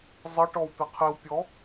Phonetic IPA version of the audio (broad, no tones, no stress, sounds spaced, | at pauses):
zˤ ɘ ʈ ɔ w t̪ ɘ qʰ i w pʲ ɔ